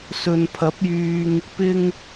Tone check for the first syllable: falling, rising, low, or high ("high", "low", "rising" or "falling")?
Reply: low